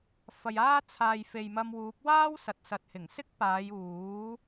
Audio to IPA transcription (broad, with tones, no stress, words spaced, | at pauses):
fɐ˨jaː˥ t͡sʰaː˨jfe˨j mɐ˧mwuː˨˥p̚ waː˥w sɐ˨t̚sɐ˨t̚hɪ˨˩ŋ sɪ˥k̚paː˨˧j uː˨˥